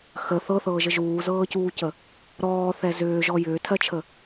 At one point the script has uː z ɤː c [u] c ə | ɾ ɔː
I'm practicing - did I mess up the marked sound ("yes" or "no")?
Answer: yes